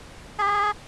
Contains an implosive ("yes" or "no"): no